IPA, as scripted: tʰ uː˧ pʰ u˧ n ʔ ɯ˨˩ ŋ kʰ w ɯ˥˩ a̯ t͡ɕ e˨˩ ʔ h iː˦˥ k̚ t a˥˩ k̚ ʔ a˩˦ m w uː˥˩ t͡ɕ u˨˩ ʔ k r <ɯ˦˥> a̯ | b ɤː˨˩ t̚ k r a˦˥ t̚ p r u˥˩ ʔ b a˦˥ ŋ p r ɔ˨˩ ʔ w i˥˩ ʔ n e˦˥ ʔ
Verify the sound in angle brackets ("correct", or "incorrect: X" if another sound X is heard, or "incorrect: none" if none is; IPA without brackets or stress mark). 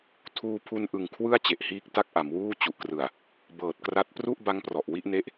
incorrect: ɯ˨˩